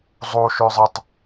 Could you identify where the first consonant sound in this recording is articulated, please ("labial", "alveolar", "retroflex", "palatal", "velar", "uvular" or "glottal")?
alveolar